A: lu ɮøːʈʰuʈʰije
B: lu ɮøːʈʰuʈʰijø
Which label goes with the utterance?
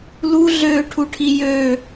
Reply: B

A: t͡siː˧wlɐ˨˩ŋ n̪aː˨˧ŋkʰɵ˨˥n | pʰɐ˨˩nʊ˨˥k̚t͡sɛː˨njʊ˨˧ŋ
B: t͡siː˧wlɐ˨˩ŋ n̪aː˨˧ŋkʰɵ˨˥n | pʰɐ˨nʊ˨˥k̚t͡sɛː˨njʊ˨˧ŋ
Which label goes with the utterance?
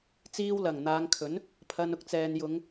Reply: B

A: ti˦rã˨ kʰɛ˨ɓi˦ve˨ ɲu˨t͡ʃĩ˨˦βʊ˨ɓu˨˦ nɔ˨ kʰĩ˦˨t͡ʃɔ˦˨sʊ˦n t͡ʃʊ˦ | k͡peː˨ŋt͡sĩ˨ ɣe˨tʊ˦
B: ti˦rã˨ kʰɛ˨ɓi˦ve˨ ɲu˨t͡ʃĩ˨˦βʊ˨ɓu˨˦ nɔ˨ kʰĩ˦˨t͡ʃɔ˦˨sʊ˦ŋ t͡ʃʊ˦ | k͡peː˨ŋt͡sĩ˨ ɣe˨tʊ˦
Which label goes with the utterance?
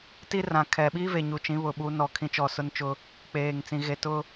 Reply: A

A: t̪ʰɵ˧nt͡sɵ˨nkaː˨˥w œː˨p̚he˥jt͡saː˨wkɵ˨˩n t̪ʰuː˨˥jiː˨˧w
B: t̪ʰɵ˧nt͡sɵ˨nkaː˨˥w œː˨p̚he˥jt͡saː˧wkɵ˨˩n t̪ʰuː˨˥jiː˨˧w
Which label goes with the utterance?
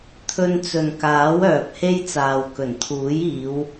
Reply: A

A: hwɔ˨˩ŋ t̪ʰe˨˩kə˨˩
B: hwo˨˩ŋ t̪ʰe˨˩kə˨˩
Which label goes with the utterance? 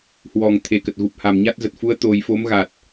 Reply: A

